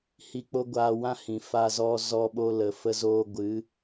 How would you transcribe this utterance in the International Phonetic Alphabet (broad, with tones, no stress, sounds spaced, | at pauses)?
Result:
h i˧ k͡p o˦ ɡʷ aː˧ w ã˦ h ĩ˨ f a˧ z ɔ˧ z ɔ˧ ɓ o˧ l ə˨ f ə˧ z oː˧ ɡʷ ɨ˨˦